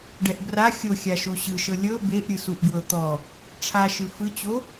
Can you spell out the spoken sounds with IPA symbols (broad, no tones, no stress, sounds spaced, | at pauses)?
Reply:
ɖ ɛ ʔ b r a xʲ o xʲ a ʃ o ɕ ɯ ʃ ɤ lʲ ɤ b e ʔ ɾʲ ɯ s u ʔ ɡ w ɤ t̪ ɔ | ʈ͡ʂʰ a ʃ ɯ f ɯ t͡ɕ o